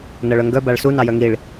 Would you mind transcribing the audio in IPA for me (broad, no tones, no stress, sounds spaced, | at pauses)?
n ɤ ɭ œ ŋ ɡ œ b a ɭ s u n ɑ j œ ŋ i ɭ